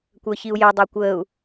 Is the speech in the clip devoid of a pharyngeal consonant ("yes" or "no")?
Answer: yes